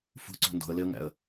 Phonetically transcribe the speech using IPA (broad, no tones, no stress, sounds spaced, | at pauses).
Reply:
f ṳ ǀ o̤ n d o̤ ə̯ l e ə̯ ŋ æ̰ ə̯